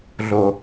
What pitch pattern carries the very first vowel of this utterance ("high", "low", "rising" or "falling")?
low